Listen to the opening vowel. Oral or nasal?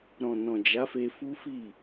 nasal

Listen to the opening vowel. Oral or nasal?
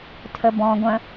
oral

